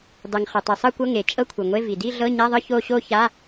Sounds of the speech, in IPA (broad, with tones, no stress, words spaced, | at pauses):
dˤe˩ŋ χɤ˩tˤi˩sˤɤ˥˧kʷɤ˧˥˧ ŋe˩ t͡ʃʼɤ˥˧kʷʰɯ˩ŋʷe˧˥˧ vi˩di˥˧ ɮɤ˧˥˧ɲa˧˥˧ðˤɯ˥˧ ço˥˧ɕo˥˧ ça˧˥˧